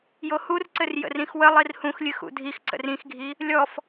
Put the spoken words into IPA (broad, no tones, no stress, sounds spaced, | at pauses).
j o h u r ǀ ɘ r j ə̰ r ĩ x w ə lˠ i r h ũ x lʲ ɨ x ṵ dʱ i x ǀ ə̰ r ĩ x ɡʱ i | lʲ ɔ f